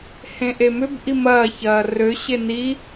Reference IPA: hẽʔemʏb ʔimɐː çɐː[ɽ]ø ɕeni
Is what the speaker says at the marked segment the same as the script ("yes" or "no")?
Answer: no